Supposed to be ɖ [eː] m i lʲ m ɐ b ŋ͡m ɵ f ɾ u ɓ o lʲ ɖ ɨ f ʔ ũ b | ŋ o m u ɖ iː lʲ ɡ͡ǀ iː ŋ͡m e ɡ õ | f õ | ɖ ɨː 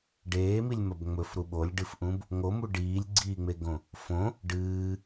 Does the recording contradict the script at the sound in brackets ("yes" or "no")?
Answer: no